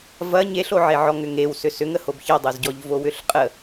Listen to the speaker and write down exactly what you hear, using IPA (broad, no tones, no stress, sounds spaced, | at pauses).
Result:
v ɐ ɲ e ɬ o ʕ e ʕ ɔ ŋ ʏ ŋ e w s ʏ s ʏ ŋ ə h o b ç ɐ dˤ o z ɟ ɔ ʎ v o w ʏ ɬ qʼ ə